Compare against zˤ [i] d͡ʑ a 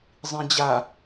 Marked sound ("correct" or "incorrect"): incorrect